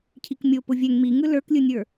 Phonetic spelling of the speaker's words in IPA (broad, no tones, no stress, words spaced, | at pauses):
cʰikmʲo pʊvʲɛŋ miŋɯ lə˞klʲɯnʲə˞